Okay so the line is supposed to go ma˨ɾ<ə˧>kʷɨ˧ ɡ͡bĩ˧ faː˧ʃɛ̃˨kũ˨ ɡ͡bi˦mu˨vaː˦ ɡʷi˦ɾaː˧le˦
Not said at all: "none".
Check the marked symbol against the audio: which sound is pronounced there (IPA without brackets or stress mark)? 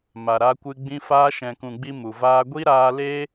a˧